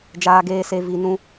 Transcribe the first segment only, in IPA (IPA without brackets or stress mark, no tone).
d͡ʒ